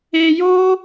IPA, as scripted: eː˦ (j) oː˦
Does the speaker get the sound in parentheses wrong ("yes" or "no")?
no